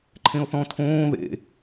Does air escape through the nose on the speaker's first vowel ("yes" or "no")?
yes